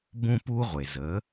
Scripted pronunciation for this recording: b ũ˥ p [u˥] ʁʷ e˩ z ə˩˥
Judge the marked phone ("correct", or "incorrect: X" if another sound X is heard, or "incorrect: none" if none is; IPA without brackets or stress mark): correct